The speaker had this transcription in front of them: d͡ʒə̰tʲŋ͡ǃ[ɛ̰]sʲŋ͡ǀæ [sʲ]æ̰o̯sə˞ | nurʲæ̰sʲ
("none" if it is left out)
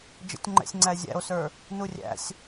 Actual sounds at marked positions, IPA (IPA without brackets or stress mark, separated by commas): ɛ̰, zʲ